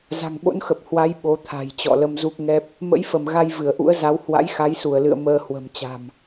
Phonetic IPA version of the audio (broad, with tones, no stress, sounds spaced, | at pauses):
z a̤˨˩ ŋ ɓ o̰˧˥ n x ə˨˩ p̚ h w a˨˦ j ɓ o˨˦ t̪ʰ a̤˨˩ j t͡ɕ ɔ̰˧˨ l ə˧ m z u˦˥ k̚ ŋ ɛ˦˥ p̚ | m ə̰˧˥ j f ə˧˩ m ɣ a˧ j v ɨ˧˩ ə̯ ʔ ṵ˧˥ ə̯ z a˨˦ w h w a̰˧˥ j x a˨˦ j s u˧˩ ə̯ l ɨ̰˧˨ ə̯ m əː˧ h w ə̤˨˩ m t͡ɕ a̤˨˩ m